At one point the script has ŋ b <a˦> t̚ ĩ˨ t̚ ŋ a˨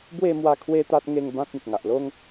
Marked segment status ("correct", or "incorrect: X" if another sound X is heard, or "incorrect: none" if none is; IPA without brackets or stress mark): incorrect: ã˦